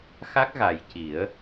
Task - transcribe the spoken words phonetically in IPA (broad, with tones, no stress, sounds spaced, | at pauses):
x a˦˥ k̚ ɣ a˨˩ j c i˨˩˦ ə̯